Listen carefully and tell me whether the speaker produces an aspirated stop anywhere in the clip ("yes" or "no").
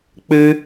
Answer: no